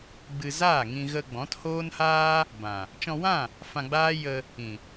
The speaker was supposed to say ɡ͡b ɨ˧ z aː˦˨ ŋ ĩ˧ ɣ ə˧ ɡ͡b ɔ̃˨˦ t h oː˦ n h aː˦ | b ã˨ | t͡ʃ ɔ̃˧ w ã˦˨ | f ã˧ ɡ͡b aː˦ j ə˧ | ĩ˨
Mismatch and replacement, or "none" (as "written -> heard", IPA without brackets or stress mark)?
none